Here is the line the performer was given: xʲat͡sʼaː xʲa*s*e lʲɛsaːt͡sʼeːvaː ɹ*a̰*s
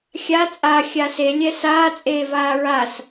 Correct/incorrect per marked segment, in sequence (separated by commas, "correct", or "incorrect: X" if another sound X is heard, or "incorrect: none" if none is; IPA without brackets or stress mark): correct, incorrect: a